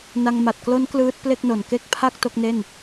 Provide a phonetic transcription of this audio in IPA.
na˧ŋ ma˨˩t̚klo˦˥n klɯː˦˥t̚ple˥˩k̚no˨˩n ke˥˩k̚ pʰa˥˩k̚ to˥˩k̚ne˥˩n

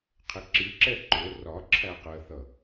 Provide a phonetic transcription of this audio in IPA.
qʰɪǁiǁɛ ǃʊ rɒ ǁʰæqɜθʌ

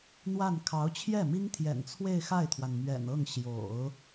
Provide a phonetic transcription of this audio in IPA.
n̪wa˥˩n kʰɑ˧˥ʊ̯t͡ɕʰjɛ˥˩ mi˥ŋt̪ʰjɛ̰˨˩nt͡sʰwe˥˧ɪ̯ xa˥˩ɪ̯t̪ʰwa˩nmɥɛ̰˨˩nɤ˥˩ŋ ɕjo̰˨˩˦ʊ̯

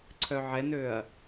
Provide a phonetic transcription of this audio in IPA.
ǀʰœʕɛnøɐ̯

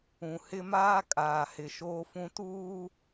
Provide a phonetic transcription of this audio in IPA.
ũ˨hɪ˦maː˦ kʼaː˨hɪ˨ ʃoː˦fũ˦tuː˦

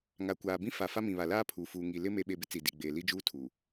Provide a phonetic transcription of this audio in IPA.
ŋa˨kʷaː˨bĩ˦ fa˨fa˦mĩ˨ βa˨laː˦ pʰuː˨fuː˨ ŋi˨ lɪ˦ me˨ɓe˨bɪ˦ t͡si˨di˨ ɡ͡beː˨li˦d͡ʒuː˦tʰuː˨

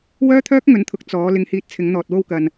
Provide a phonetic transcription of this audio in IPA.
wœː˥t̪ʰœː˥k̚ŋɵ˨˥nt̪ʰʊ˨k̚ t͡sɔː˨˧ lɪ˧ŋhiː˧t̚ t͡sʰɪ˨˧ŋn̪ɔː˨t̚wo˧wkɐ˨n

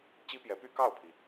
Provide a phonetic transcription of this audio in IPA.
t͡ɕi˥pjɛ˧˥py˥ kɑ˥˩ʊ̯pʰi˩

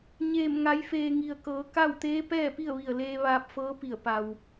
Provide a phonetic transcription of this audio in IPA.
ɲeː˧˩m ŋa˩˧jfeː˩ ŋi˩ə̯kɤː˩˧ ka˥˨wt̪eː˧˥ pɛː˥˨pi˥˨ə̯ʋi˧˩ə̯leː˧ ʋaː˧p̚fɤː˧˥pi˧˩ə̯ pa˩w

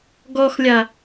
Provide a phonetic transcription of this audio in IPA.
ɡɔxlʲa

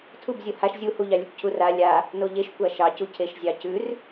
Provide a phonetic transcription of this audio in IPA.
tʰubzʲo haʃ zʲuhuʎɑ lʲʉkʷcʰura lʲa | noʎeʃ kʷaʃɑcu cʰeʃzʲɑcʉr

